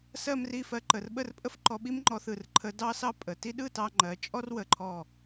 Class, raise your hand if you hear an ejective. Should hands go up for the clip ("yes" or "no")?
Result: yes